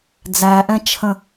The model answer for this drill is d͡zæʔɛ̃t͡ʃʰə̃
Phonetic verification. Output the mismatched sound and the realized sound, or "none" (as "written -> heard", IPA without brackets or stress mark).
none